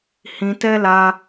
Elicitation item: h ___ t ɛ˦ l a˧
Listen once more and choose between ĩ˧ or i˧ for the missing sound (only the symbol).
ĩ˧